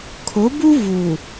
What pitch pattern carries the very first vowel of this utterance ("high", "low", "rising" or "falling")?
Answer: rising